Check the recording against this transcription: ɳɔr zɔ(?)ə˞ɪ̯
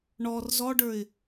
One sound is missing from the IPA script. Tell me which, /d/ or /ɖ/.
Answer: ɖ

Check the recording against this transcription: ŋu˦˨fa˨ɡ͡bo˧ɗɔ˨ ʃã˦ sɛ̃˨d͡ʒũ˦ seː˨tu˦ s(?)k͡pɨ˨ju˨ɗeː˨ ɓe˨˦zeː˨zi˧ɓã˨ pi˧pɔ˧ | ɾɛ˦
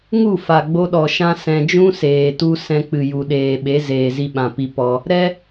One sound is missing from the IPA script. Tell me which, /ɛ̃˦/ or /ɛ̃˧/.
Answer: ɛ̃˧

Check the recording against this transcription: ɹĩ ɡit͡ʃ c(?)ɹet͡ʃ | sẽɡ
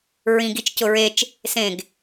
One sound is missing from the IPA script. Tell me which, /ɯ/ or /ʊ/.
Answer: ʊ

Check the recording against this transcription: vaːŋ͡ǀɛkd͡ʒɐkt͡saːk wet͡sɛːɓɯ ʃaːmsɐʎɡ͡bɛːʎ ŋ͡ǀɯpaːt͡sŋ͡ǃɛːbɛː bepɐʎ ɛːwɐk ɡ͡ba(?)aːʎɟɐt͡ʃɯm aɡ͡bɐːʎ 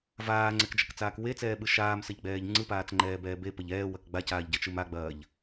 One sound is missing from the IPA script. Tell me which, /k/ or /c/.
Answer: c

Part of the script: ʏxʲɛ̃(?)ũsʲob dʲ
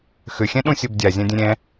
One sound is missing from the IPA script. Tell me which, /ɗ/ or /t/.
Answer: ɗ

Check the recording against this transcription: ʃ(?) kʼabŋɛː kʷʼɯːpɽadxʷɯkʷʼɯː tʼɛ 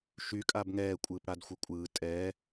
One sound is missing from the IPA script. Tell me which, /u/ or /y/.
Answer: y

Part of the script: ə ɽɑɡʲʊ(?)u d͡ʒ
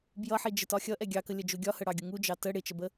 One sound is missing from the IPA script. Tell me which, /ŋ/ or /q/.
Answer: ŋ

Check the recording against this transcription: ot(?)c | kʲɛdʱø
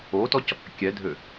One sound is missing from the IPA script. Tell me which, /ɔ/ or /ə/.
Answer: ɔ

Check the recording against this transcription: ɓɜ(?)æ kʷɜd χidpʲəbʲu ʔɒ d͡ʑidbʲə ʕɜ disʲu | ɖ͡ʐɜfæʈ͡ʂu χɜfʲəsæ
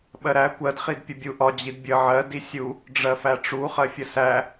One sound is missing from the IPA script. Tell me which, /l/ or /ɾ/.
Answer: ɾ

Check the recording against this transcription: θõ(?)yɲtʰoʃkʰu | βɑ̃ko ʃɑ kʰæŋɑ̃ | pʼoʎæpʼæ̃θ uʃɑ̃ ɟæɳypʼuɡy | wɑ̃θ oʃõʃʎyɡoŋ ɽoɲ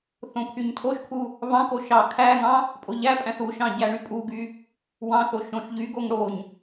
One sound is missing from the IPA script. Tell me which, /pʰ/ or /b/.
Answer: pʰ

